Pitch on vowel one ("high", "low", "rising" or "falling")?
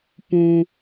high